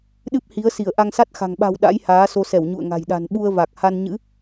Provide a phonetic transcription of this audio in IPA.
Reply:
ɗɨ˦˥p̚hi˨˦ə̯si˧˩ə̯ ʔa˧ŋsa˦˥t̚xa̤˨˩ŋ ɓa̤˨˩w ɗa̰˧˥jhaː˨˦so˧sɛ˧˩w ɲṵ˧˨ə̯ŋa̤˨˩j ɗa̤˨˩nɓu˧ə̯va˨˩k̚ ha˧nɲɨ̰˧˥

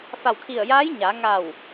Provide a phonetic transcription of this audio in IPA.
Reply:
fa˧˩wkʰi˧˩ə̯jaː˧˥j ɲa˩˧ŋa˧˩w

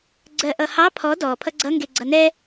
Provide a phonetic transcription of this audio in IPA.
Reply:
ɡ͡ǀɜʔʌhɑ pʰɔ dɔ pʰʌɡ͡ǀʌ ŋɡeɡ͡ǀʌnɛ

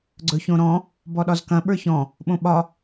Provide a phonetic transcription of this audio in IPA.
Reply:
ɡ͡ǀɵçõɾɔ̃ | bɔɗɒzkɐ̃ ɓə˞çɔ̃ | ɓõɓɒ

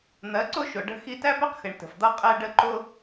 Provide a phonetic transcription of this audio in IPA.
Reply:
n̪ɜ˨˦ǀʊ˦ʃʊ˨ ɖə̤˧ xi˧tæ˦pɛ˦qxɪ˨ɳ tə̤˨fd̪ʌ˦ qʼɛ˦ɖə˦ ǃʊ˦

